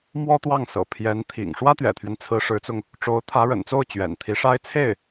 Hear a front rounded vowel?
no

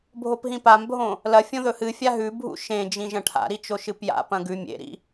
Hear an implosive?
no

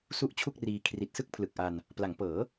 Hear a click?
no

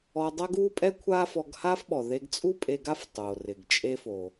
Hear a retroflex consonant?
no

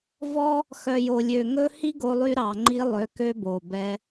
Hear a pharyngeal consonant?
no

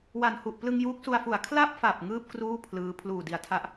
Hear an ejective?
no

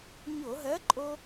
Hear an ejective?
yes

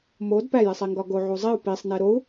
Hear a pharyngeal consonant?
yes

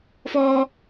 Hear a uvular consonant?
no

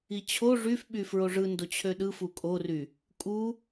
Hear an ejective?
yes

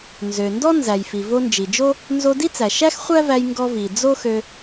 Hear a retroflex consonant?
no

